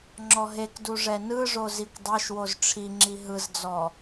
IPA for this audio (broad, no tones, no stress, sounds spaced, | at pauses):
ŋ͡ǁ ɔ ɦ e k d u ʐ ɛ n ɯ ʐ o z i kʷ dˤ ɤ ʃ w o z ʈ͡ʂʰ i ŋ͡ǁ i ɦ ɯ z d͡z ɔ